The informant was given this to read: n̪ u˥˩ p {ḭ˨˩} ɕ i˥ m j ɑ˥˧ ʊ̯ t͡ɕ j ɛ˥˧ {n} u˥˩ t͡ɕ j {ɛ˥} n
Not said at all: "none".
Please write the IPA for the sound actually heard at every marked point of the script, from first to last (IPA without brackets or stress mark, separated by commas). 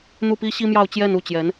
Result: i˥, n, ɛ˧˥